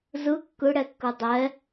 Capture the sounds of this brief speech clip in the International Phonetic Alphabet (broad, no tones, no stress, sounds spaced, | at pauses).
z ɯ kː ɯ ɽ ɛ kː ɯ dˤ ɛ